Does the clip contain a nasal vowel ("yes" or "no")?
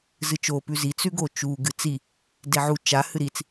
no